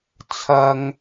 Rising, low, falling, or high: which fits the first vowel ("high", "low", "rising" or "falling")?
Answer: low